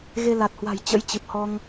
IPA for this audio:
ɣ e˧ l a˨˩ t̚ h w a̤˨˩ j t͡ɕ ə̰˧˥ j t͡ɕ ɨ˨˩ p̚ h ɔ˧ ŋ

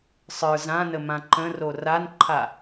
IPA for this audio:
sˤ ə˞ z ã n ə m ã ǃ ə̃ r o r a n ǃʰ a

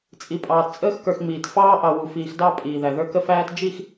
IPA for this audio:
t͡sʼ i˨ pʼ ɑː˨ t t͡sʼ əː˦ x k ə˞˨ x ŋ͡m iː˨ t f ɑː˦ ʔ ɑ˨ w u˨ f iː˨ x d ɑ˦ pʼ iː˨ ð æ˨ ð ə˞˦ k ə˦ f æː˦ t d͡ʒ i˦˨ x

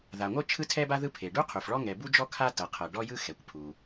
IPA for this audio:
ð a˩ ŋʷ ɤ˥ t͡ʃʰ ɯ˥ tʰ ɛ˥ b a˥ ð ɯ˥ pʰ e˩ ɖ u˥ qʰ u˩ f ɭ ɔ˥ ŋ ɛ˩ b u˥ d͡ʒ ɔ˥ kʰ a˥ t ɤ˩ qʰ ɤ˩ ɖ ɔ˥ j ɯ˥ x ɛ˩ kʷ pʰ u˩

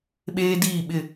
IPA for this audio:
ɓ eː˦ d iː˦˨ ɓ ɪ˦˨

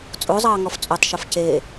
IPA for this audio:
t͡sʼ o zˤ ɑː ŋ ɔ f t͡sʼ o tˤ ʃ o f c e

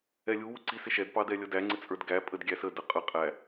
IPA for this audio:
ɛ lʲ u w u ǀ i s ɪ ʃ ɛ d p ɑ d ɛ lʲ ʌ d æ ŋ͡ǀ ɪ t͡sʼ ə˞ d ɡ æ pʼ ə d ɡʲ æ s ə d ə qʼ ə qʼ æ

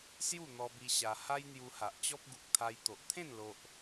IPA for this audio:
s j u˥˧ n̪ ɔ˧ b i˧ ɕ a˧ h a˦ j n̪ j u˧ h a˨ ʔ t͡ɕ ɔ˦ p̚ ɡ u˨ k̚ t̪ʰ a˧ j t̪ o˨ ʔ t̪ʰ ẽ˥˧ n l o˦ ʔ

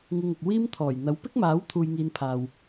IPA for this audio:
ŋ ɪ˧ ŋ ʊ˨ k̚ w iː˥ m t̪ʰ ɔː˨˩ j n̪ ɐ˨˥ w p ɪ˥ k̚ m aː˨˥ w t̪ʰ uː˧ j ŋ iː˧ n pʰ aː˨ w

